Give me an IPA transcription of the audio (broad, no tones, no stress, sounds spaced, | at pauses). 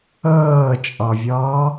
ɤː t͡ʃʼ ɔ vʲ ɔː